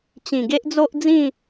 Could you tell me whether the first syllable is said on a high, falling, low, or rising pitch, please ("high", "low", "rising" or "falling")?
low